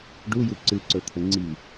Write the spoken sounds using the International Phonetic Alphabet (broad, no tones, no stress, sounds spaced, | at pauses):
ɖ u j u ǀ ɨ ǀ ɵ t̪ʰ ə ŋ͡ǀ i